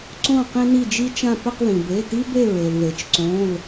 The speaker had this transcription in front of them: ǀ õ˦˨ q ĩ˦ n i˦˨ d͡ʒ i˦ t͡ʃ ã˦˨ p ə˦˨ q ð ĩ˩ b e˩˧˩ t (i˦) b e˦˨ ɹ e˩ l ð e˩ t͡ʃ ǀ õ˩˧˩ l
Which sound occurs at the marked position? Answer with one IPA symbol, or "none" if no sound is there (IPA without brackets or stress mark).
i˦